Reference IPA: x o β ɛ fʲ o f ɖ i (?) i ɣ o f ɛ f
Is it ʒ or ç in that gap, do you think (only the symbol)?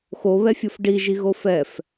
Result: ʒ